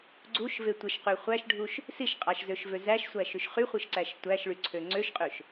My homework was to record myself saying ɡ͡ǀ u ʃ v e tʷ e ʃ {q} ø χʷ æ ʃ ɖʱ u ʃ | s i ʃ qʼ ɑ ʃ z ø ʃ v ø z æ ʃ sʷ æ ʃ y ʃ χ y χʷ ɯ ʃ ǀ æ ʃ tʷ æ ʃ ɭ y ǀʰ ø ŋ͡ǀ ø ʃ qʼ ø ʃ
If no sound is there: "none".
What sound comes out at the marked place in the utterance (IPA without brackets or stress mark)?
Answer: q